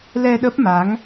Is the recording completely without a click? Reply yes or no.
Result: yes